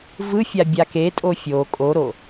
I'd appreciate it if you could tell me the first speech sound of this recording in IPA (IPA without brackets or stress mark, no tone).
v